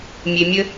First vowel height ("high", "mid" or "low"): mid